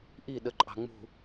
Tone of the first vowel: falling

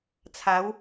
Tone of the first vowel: rising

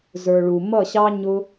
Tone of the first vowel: low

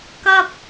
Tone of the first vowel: high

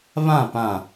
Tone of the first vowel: falling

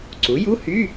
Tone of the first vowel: rising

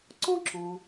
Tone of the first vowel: high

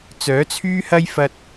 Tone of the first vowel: rising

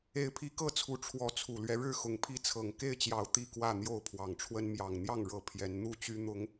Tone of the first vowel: rising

